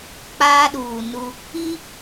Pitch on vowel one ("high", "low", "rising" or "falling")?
high